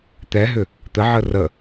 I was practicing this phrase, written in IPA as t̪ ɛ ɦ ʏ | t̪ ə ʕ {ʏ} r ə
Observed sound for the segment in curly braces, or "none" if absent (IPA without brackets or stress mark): ə